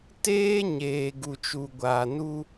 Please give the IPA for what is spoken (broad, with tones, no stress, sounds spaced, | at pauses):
t eː˦ ɲ eː˨ ɡ u˨ t͡ʃ u˨ ɡʷ aː˨ n u˦